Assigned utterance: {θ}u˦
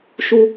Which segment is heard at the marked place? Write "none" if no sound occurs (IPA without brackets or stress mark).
ʃ